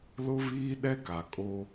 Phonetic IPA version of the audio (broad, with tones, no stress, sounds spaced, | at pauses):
l ʊ˦ β iː˦ ɗ ɛ˦ k a˨ kʼ o˦